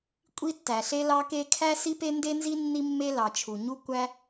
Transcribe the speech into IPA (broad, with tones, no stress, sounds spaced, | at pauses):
kʷʼ i˥ tː æ˩ ɬ e˥ l ɑ˥ k e˥ kʰ æ˥ s i˥ p e˥ n d e˥ n z i˥ nː i˥ mː e˥ l ɑ˩ t͡ʃʰ u˩ ɲ u˥ kʷ æ˥